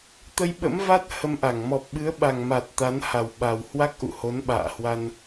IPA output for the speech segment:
t̪ ə˧ j ɓ ə̰˧˥ m v a˦˥ t̚ h ə˧ m ʔ a˧˩ ŋ m ɔ˨˩ p̚ ɓ ɨ˨˦ ə̯ ɓ a˨˩ ŋ m a˨˩ t̚ t̪ a˨˦ n h a˨˩ w ɓ a˨˩ w h w a˦˥ k̚ ʔ ṵ˧˨ h o˨˦ n ɓ a̰ː˧˨ h w a˧ n

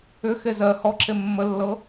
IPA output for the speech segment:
ʏ x e z ɜ h ɔ ǁ e mː ə lː ɤ

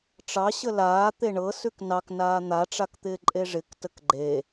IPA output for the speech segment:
ʈ͡ʂ ɑ ɕ ə l aː t̪ e ɳ ɤ s ʉ k n ɑ k n aː n̪ a ʈ͡ʂ a k t̪ ɪː ǃʼ e ʐ ɪ k t ə k ɡ͡ǃ e

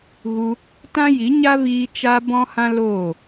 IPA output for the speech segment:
ɣ u˧ | t ã˦ j i˨˦ ɲ a˦ v iː˧ t͡ʃ a˧ b ɔ̃˦ h ã˦ l oː˦˨

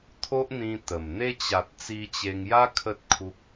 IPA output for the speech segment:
t̪ʰ o˦ ʔ n̪ ĩ˧ t̪ ə˨˩ m n̪ e˧ t͡ɕ a˨ t̚ t͡s i˧ t͡ɕ e˧ ŋ j a˦ kʰ ə˦ t̚ kʰ u˦ k̚

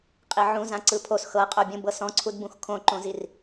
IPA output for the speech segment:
qʼ i ʕ ũ z ã ǀ ɯ pʰ o s x ɤ qʼ o bʲ ũ b ɤ s ɔ̃ ǀʰ u d b ũ x kʰ õ ǃ õ z i r

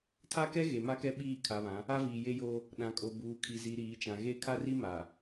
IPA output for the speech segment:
tʰ a˦ k ɛ˦ ɣ e˨ m a˦ k ɛ˦ ɓ iː˦˨ kʰ a˨ β ã˨˦ | a˦ v iː˨ j e˦ j oː˦ | ɗ ã˨ kʼ o˨ b uː˨ kʰ i˨ z i˨ ɾ iː˨˦ t͡ʃ ã˨ ɣ e˦ kʰ a˦ r i˦ m aː˨

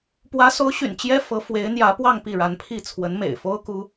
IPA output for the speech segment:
p w ä˧˥ s o˧˥ ʊ̯ ɕ y̰˨˩ n t͡ɕ j ɛ˥ f ɤ˧˥ f w e˧˥ ɪ̯ n̪ j ä˧˥ p w ɑ˥˧ ŋ p i˥˩ ɻ a˧˥ n pʰ i˥˩ t͡sʰ w ə˧˥ n m ḛ˨˩ ɪ̯ f o˥ ʊ̯ k u˥

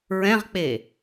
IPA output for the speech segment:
ɹ ɛ̃ ʁ k͡p e

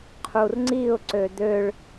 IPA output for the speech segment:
qʰ u r ŋ͡ǀ i ʊ̯ ǀ ø d̪ ø ɭ

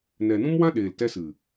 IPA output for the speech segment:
n ɛ˨ n ũ˦ m w ã˦ ɗ eː˨ l t ɛ˧ s ɨ˨

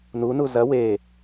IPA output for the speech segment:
n u n u z ɐ w e

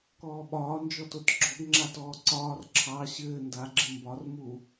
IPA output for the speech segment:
k ɔː ɓ ɒː n d͡ʒ ɔ t o t ɡ͡ǁ ɔ ɡ ŋ͡ǁ a t ɔː ǀ ɒː r ǁʰ ɑ ɕ ɘː n d a ɡ͡ǁ ɘ m b ɒ r m u

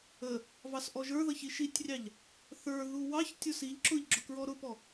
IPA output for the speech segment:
ə | v ɑ s ʔ ɔ ʒ ə˞ ð ʌ ç i ʃ i tʲ rʲ ɑ ʎ | θ ə˞ ð u w ɑ ç tʲ ʊ s i ʎ ǁ ʊ ʎ ɡ͡ǁ ʊ k ɹ ɔ ɾ ʊ p ɔ

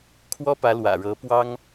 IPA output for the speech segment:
kʰ w ɔ˥ p ä˧˥ l w ä̰˨˩ ɻ ɤ˧˥ p w ɑ˥ ŋ

